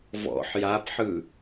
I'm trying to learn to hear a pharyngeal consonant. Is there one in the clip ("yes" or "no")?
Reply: yes